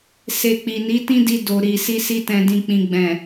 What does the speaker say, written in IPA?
s e˧ k͡p i˨ n i˨˦ t ĩ˦ d i˧ d o˨ ɾ i˨ s i˧ s i˧ t ɛ̃˨ d ĩ˨ k͡p ĩ˨ ɡ͡b ɛ̃˨

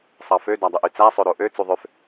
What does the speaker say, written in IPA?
sˤ ɑ f ø d æ dˤ e ʔ y t͡s æ sˤ ø ɾ o ʔ ø t͡s u ðˤ ø f

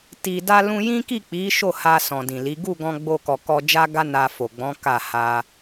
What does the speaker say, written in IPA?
t i˨ d a˧ l ũ˧ j ĩ˦ k i˦˨ k͡p i˨˦ ʃ o˦˨ h a˧ s ɔ̃˨ d ĩ˨ l i˨˦ ɡ u˦˨ ɡ ɔ̃˧ ɡ͡b o˧ k ɔ˨ k ɔ˧ d͡ʒ a˦ ɡ a˦ n a˧ f o˨ ɡ͡b ɔ̃˨˦ k a˦˨ h a˧

